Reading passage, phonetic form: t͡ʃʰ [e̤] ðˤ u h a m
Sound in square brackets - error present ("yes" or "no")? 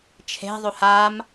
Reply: no